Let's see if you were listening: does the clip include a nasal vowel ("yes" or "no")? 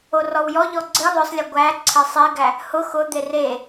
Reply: no